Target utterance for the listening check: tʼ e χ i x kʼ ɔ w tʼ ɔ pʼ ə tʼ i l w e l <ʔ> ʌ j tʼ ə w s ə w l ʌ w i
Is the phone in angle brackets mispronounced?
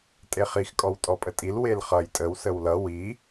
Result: yes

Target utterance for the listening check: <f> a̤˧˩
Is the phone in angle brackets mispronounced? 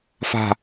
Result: no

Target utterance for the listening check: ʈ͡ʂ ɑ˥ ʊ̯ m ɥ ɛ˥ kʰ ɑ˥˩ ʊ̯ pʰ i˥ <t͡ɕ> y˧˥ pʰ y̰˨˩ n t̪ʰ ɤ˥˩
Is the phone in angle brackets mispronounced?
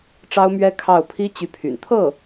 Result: no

